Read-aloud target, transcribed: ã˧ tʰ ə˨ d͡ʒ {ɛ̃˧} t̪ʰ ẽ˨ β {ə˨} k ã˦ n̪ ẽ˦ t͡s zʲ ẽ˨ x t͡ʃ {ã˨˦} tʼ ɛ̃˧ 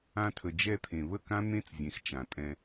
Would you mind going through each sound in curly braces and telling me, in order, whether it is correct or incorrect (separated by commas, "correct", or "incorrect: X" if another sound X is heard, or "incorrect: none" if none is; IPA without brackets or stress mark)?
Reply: incorrect: ɛ˧, incorrect: ə˦˨, incorrect: ã˨